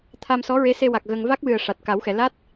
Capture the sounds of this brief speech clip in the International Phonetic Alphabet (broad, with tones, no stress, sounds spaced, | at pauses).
t̪ʰ a˧ m s ɔ˧˥ ɹ e˧˥ s e˧ w a˨˩ k̚ ɣ ə˧ ŋ v a˦˥ k̚ w ɨ˨˩ ə̯ ʂ a˨˩ t̚ k a˨˩˦ w x ɛ˨˩˨ l a˦˥ t̚